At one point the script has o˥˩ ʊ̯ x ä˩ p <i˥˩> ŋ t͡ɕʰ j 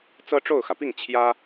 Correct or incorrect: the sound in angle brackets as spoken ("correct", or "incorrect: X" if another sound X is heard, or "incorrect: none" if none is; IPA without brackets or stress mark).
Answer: correct